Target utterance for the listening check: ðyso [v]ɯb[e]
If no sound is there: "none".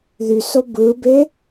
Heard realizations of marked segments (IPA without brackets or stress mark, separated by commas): b, e